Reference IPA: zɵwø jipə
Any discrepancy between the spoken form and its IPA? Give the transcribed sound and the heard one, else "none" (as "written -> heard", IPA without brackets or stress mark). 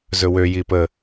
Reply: none